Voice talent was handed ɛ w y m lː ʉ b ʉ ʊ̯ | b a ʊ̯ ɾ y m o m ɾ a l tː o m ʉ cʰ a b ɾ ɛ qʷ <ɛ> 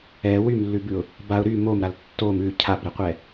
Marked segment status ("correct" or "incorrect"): correct